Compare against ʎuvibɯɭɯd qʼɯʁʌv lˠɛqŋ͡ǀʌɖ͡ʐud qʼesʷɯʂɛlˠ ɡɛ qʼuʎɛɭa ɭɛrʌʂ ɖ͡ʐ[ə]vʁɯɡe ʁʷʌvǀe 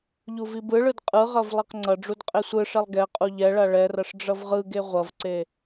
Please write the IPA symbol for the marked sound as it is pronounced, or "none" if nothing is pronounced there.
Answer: ʌ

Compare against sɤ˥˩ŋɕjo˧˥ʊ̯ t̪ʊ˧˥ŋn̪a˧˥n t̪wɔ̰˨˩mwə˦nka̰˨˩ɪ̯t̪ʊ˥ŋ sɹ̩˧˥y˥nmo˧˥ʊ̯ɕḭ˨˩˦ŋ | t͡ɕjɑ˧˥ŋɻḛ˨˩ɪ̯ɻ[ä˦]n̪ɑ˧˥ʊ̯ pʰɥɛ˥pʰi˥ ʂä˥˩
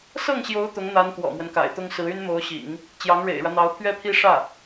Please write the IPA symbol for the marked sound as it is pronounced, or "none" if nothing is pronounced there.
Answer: ä˦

